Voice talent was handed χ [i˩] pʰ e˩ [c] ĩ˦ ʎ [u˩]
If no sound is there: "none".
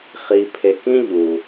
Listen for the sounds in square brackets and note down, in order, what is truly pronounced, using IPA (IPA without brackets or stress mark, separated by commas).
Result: i˩, k, u˩